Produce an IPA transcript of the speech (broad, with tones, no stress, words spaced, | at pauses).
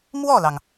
mwɔ˥˩lɑ˩ŋ